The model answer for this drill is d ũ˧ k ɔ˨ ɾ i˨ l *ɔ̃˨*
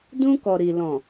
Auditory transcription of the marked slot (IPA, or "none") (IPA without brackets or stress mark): ɔ̃˨